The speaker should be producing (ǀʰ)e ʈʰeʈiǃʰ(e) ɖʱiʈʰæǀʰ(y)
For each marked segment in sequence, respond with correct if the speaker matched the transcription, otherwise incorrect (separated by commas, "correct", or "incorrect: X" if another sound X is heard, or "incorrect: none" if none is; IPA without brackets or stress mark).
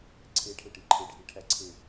correct, correct, incorrect: e